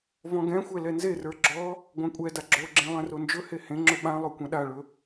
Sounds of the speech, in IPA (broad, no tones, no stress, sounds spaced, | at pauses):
v ɔ̃ ɡ ɛ̃ xʷ ɛ l ɛ n z e r ə˞ ɡ͡ǁ ɔ | ɡʷ ã kʷʼ ɛ d a ɡ͡ǁ o ɡ͡ǁ ẽ lˠ ɛ̃ r o n d͡ʒ ɵ h e h ẽ ŋ͡ǁ ɵ ɓ ã lˠ o kʷ ɛ̃ ɗ a ɭ ɵ